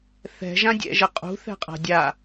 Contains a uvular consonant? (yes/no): yes